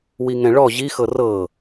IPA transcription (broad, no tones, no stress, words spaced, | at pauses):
wiŋɛ̃ɭɔ ʑixɤ rɤ